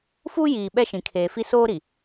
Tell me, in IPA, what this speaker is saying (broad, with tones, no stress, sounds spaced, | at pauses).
f u˦ j iː˨ ɓ ɛ˦ ʃ ĩ˨ kʰ eː˨ f i˦ s oː˦ ɾ i˨